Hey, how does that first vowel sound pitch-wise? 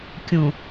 low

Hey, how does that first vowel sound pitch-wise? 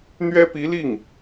high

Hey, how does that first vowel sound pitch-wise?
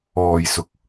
low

